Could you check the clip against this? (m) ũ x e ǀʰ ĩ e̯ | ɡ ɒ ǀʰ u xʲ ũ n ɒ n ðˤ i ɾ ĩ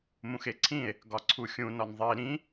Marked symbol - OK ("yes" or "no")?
yes